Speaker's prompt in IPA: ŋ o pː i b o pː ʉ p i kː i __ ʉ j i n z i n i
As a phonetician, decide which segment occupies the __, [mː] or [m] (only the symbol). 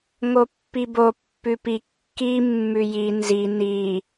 mː